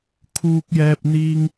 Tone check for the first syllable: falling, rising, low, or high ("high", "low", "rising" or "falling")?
high